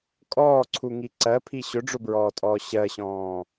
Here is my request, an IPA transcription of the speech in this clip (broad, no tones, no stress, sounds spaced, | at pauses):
kʼ ɔː ǀʰ u ŋ i ǀ ɜ pʰ i ɕ ʊ ɖ͡ʐ ʊ b ɹ ɔː tʼ ɔː ɕ ɜ ɕ ɔ̃ː